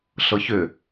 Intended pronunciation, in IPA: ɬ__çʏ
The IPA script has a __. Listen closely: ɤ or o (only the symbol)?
ɤ